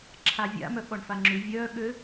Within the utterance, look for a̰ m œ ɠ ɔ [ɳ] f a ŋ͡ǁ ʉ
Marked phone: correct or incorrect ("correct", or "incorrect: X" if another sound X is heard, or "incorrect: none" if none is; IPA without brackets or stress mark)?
correct